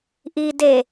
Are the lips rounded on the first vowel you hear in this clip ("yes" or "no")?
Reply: no